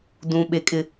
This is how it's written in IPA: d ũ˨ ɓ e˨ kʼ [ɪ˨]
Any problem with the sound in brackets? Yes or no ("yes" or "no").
no